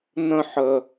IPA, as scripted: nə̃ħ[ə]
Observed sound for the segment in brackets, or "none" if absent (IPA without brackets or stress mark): ə